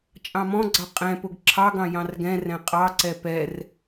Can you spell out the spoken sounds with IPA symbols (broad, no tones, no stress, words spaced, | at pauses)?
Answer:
t͡ʃʼɑ̃mɔ̃ɡ͡ǀɑ qʼɛ̃pʊɡ ǁʰɑɡɑ̃ jɑ̃rɡɛ̃rɛ̃ qʼɑǀɛ pɛr